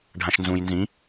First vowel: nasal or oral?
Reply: nasal